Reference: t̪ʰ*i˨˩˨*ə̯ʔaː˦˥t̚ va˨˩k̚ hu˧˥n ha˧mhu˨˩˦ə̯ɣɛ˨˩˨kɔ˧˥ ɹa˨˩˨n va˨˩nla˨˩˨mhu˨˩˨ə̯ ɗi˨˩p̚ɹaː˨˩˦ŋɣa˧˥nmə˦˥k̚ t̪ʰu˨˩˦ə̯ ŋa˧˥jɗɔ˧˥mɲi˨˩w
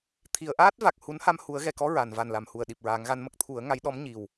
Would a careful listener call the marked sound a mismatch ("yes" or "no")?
no